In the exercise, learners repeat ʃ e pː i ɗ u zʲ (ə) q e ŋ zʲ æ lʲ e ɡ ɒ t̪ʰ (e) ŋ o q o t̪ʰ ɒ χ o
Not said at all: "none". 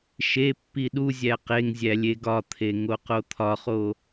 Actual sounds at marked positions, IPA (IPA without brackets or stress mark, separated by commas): æ, e